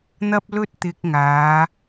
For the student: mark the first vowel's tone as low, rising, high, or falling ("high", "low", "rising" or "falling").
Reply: high